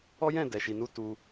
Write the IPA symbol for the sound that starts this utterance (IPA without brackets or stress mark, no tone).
ɔ